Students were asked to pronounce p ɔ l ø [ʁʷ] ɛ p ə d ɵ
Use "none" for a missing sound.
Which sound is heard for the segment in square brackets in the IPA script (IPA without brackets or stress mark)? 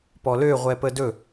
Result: ʁʷ